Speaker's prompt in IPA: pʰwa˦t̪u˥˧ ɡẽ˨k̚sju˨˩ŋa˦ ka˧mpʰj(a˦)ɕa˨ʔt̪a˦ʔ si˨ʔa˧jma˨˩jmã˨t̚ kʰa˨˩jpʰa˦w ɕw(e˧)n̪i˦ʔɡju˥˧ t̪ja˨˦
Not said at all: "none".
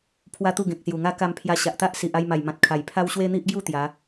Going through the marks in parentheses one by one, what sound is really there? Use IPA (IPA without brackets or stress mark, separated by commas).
a˧, e˦